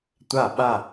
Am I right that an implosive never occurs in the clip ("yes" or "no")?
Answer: no